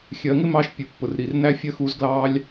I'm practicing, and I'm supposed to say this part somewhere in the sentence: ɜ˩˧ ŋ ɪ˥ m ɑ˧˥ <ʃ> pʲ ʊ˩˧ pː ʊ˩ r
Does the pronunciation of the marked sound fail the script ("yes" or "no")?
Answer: no